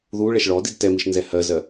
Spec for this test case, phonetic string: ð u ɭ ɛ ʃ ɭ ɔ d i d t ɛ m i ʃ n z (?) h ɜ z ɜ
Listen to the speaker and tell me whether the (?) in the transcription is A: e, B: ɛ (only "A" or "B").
B